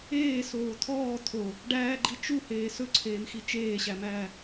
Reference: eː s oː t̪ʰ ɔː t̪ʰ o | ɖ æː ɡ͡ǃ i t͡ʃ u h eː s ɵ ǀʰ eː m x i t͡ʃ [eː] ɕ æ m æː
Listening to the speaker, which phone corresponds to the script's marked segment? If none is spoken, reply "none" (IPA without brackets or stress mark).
eː